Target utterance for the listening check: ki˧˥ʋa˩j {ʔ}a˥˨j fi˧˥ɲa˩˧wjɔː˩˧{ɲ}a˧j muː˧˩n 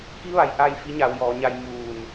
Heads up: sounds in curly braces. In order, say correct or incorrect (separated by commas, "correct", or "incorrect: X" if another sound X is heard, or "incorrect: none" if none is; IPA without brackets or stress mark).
correct, correct